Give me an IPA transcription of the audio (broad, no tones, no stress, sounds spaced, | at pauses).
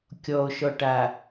kʲ ɔ o̯ ʃ ɔ ʈ a